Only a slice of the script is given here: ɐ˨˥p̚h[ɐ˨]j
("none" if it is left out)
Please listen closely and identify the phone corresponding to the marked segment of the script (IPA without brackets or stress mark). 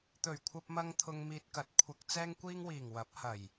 ɐ˨˩